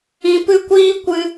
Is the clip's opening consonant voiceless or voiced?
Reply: voiceless